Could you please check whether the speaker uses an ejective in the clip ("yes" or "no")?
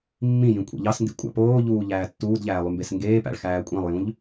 yes